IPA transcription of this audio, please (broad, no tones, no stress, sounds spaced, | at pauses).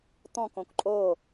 t̪ ɔ̃ k õ k ǃʼ o